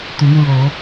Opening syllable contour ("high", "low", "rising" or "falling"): rising